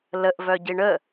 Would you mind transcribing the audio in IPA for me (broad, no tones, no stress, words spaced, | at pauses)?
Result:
ləʔvœɟi ɳə